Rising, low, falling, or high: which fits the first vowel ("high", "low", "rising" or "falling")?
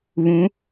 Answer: rising